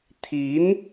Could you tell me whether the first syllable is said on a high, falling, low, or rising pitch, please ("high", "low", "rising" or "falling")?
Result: rising